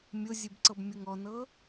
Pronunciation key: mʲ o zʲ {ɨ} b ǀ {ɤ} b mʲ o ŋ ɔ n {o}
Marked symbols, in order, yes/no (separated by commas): yes, yes, no